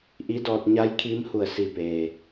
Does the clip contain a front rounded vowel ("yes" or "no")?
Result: no